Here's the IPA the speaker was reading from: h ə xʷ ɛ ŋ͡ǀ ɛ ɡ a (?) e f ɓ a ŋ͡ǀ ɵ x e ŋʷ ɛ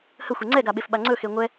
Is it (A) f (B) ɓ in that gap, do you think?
B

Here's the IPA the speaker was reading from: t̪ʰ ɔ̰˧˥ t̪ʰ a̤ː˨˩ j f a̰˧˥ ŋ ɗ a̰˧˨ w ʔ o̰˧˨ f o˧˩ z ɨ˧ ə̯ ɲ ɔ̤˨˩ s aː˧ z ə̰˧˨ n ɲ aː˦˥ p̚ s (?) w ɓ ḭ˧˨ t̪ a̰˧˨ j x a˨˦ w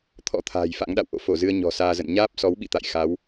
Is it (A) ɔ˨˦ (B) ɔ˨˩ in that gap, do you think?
A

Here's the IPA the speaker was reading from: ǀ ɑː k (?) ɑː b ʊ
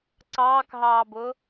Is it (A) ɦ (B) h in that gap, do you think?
A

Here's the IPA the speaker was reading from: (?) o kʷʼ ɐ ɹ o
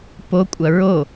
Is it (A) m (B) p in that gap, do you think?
B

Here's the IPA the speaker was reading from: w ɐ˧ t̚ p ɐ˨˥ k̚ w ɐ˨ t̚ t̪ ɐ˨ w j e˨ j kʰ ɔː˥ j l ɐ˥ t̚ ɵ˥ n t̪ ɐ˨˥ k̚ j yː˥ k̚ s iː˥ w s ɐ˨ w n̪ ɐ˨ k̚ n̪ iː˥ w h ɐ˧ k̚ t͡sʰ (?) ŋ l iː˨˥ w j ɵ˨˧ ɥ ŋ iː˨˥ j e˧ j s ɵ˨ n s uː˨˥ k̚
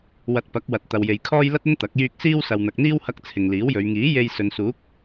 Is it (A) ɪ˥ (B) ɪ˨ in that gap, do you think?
B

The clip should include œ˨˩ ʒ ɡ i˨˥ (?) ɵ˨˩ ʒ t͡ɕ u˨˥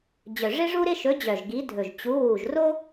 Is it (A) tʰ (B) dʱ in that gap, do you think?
B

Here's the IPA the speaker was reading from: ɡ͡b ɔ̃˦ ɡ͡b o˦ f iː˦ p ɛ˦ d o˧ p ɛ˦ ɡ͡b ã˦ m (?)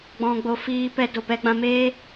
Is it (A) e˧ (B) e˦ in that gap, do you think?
B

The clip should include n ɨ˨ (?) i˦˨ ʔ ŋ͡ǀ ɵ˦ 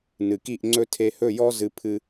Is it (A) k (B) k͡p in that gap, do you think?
A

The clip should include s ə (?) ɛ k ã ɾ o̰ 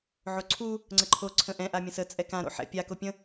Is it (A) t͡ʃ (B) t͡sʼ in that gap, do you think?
B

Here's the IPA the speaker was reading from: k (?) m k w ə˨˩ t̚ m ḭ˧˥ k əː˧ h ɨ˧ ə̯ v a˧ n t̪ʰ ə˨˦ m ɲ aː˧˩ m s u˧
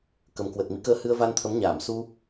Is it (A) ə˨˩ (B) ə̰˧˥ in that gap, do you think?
A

